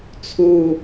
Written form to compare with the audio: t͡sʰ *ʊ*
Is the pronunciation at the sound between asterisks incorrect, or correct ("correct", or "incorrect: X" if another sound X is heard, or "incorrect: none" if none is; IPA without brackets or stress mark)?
incorrect: u